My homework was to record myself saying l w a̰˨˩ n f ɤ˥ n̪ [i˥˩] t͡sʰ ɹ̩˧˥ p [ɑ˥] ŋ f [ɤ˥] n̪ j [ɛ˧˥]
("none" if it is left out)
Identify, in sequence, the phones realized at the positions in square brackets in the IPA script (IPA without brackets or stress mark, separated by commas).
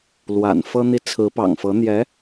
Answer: i˥˩, ɑ̰˨˩, ɤ˧˥, ɛ˧˥